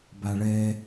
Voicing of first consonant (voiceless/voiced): voiced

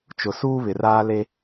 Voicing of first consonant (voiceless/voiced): voiceless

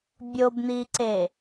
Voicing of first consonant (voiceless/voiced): voiced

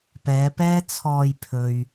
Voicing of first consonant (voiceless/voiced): voiceless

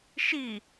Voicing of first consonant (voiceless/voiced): voiceless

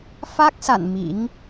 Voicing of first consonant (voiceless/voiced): voiceless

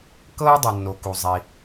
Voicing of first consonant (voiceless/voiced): voiceless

